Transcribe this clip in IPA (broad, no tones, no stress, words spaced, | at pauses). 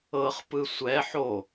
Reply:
ɤχpɯ sʷɛ ħo